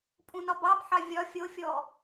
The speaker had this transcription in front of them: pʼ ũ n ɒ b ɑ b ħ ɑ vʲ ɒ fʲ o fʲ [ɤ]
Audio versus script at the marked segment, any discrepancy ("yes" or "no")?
yes